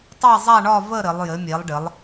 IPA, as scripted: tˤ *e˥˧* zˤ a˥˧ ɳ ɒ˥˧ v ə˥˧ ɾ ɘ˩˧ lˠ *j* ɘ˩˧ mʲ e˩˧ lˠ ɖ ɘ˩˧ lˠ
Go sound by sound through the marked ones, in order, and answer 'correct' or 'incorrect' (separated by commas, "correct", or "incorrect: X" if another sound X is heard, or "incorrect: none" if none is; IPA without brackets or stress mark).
correct, correct